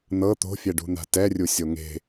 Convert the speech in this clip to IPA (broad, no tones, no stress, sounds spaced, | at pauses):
n̪ ɤ t̪ o̤ fʲ ɛ ɖ ṳ n̪ a̤ t ɛ rʲ u sʲ o ŋ e̤